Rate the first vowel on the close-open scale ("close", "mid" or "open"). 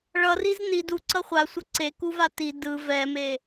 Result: mid